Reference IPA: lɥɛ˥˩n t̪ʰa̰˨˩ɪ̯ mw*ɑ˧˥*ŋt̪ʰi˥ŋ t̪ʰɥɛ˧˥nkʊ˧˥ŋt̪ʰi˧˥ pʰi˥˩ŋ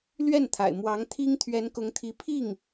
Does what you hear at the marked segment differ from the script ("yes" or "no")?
no